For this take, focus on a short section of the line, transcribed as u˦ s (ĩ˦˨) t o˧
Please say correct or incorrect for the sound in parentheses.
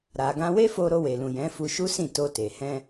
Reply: correct